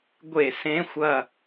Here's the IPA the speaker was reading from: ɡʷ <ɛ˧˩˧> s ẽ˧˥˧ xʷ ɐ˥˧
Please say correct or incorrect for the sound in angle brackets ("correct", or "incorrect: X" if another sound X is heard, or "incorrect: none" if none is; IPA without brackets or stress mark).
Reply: incorrect: e˧˩˧